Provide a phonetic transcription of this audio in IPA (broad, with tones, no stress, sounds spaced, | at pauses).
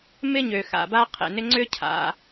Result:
m ɪ˥ ɲ ø˩ x a̰˩ b a˥ qʰ ḛ˩ n ɪ˥ ŋ͡ǀ ʏ˥ cʰ a̰˩